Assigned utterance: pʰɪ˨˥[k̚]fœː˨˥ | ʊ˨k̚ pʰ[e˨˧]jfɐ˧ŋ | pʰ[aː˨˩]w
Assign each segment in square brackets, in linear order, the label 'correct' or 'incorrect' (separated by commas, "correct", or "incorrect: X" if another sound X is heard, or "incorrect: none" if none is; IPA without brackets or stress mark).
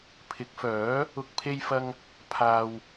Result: correct, incorrect: e˧, incorrect: aː˨